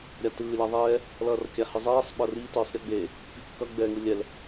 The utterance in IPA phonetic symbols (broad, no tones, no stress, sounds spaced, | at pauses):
ɾʲ a t ɯː lʲ a ðˤ ɛː | l ʌː r kʲ a h ɯ zˤ ɛː sˤ ɓ ʌ r i t ɯː sˤ ɾʲ ɯ ɡ͡b e | k͡p i kː ʌ ɡ͡b ɛː ŋ ɯ lʲ ɛ l